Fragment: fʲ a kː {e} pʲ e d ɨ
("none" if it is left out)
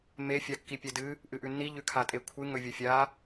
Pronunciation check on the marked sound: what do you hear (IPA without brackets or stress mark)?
i